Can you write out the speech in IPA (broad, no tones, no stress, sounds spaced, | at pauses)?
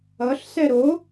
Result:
ʌ ɬ s ɛ ɾ o